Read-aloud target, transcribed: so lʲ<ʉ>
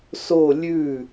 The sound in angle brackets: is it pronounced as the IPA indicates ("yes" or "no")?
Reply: yes